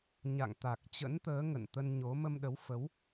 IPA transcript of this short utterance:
ɲ a̰˧˨ ŋ t̪ a˨˩ k̚ t͡ɕ ə̰˧˥ n t̪ əː˨˦ ŋ ə̰˧˨ n t̪ ə˧ n ɲ o˨˦ m ə˧ m ɗ ə˨˦ w f ə˨˦ w

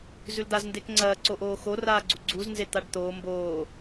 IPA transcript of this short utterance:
z ʉ l d̪ a z n d e k ŋ͡ǀ ɐː ǀ o ʔ oː x o r aː ɡ͡ǀ u ɡ͡ǀ u z n z e t̪ a ɖ t̪ oː m b oː

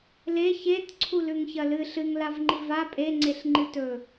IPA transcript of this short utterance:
l e ç e t ǀʰ u l ʉ ŋ ç ɐ l ɨ ɬ ɨ ŋ l a v ŋ͡ǃ i v a pʼ e ŋ͡ǀ e ɬ ŋ͡ǃ ɨ t ɵ

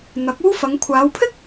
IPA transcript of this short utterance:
n̪ ɐ˨˥ k̚ uː˥ f ɐ˨˧ ŋ kʷʰ aː˨˧ w pʰ ɪ˥ k̚

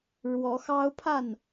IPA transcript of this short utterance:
ɻ w ɔ˨˦ x ɑ˦ ʊ̯ pʰ a˥˨ n

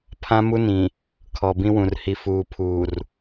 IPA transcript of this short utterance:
pʰ ã˦ m u˦ n ĩ˨ | kʰ ɔ˨ b ĩ˦ w ũ˨ r h i˨ f uː˨ pʰ uː˨ r

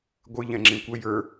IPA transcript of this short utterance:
ɡʷ ɨ ʎ ɛ̃ ŋ͡ǁ ĩ kʷ ə j ə˞

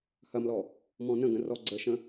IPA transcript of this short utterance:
h ɐ m l ɔ | m ɔ̃ n ə̃ ɡ ə̃ r ɔ ɡ͡ǀ ə ʃ ə̃

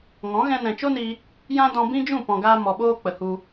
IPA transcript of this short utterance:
ŋ ɔ̃˨˦ ɣ ɛ̃˧ n ɛ̃˨ t͡ʃ o˦ n i˧ | j ã˦ d ɔ̃˧ b ĩ˦ d͡ʒ ũ˦˨ p ɔ̃˨ ɡ aː˧ m ɔ˨ ɓ oː˧ k͡p ə˨ h u˧

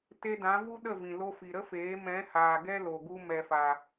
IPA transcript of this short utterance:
t e˧ d ã˨˦ v u˦ ɗ ə˦˨ v ĩ˨ l o˧ f i˨ ɾ ə˦ f eː˨˦ m ɛ̃˨˦ h aː˨ ɡ ɛ˦ l o˨ ɡ u˧ m ɛ˨ f a˨

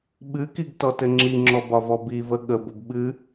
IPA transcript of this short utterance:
ɓ ɨ k i ɡ t ɔ t ɘ ŋ͡ǁ i ŋ͡ǁ ɔ b ɒ v ɔ b i v ə ɠ ə b ə b ɓ ɨ

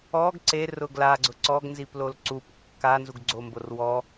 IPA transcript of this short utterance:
ɔ ɡ ǀ e r ʊ ɡ l a ɡ͡ǀ ʊ ǀ ɔ ɡ n z i p l o l ǀ u p kː a n z u ɡ ɡ͡ǀ o m b o r w ɔ

